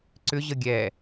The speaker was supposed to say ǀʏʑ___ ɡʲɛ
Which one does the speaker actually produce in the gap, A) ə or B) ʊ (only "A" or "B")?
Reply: A